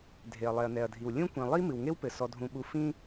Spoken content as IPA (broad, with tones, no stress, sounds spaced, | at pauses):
dʱ e˨ ɐ̯ lˠ ɛ˨ ɐ̯ n ɛ˨ ɐ̯ dʱ i˨ w lʲ ũ˦ kʷ ĩ˨ lˠ i˦ m ɨ˨ w ŋ e˦ w p ɘ˨ s ɔ˧ dʱ ũ˧ ɓ u˧ f ĩ˦